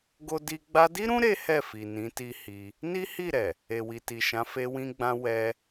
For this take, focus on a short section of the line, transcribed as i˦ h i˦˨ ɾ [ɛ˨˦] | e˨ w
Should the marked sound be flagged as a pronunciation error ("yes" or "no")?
yes